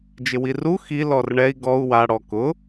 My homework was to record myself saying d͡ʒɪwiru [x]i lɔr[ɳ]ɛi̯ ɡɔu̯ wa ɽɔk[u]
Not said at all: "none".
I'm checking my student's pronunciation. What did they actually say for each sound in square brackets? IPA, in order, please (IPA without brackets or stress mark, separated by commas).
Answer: x, ɳ, ʊ